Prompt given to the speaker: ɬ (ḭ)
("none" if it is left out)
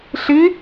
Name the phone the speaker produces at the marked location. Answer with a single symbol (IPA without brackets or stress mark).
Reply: i